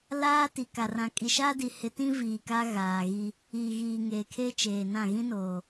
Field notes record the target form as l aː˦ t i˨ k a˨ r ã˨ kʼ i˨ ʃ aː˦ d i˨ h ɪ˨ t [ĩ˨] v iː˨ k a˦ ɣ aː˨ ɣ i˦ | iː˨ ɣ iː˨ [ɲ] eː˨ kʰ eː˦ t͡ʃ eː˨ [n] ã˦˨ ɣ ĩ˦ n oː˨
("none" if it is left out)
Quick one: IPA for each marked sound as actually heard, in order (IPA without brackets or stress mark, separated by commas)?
ĩ˦, ŋ, n